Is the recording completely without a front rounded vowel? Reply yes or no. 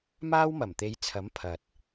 yes